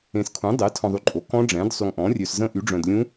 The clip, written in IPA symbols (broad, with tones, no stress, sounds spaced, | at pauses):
ẽ˨ s kʰ ũ˩˥ dˤ e˩˥ tʰ ɔ̃˨ ðˤ y˨ ǃʼ o˩˥ k ɔ̃˦˥ ɖ͡ʐ ɛ̃˩˥ d sˤ y˨ ŋ ʔ ɔ̃˩˥ rʲ ø˨ s z ə̃˦˥ ʔ y˩˥ ɖ͡ʐ œ̃˨ d lʲ ũ˦˥